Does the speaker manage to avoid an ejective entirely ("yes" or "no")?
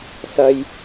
yes